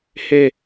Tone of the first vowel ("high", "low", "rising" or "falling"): falling